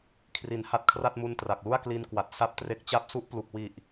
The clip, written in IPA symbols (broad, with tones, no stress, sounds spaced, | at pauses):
kʰ r i˨˩ n h a˦˥ t̚ kʰ r a˥˩ t̚ m u˧ n t r a˨˩ k̚ l u˥˩ a̯ k l i˧ n k w a˨˩ t̚ s a˦˥ p̚ t r e˦˥ k̚ t͡ɕ a˥˩ p̚ s u˦˥ ʔ p l u˨˩ k̚ w i˨˩ ʔ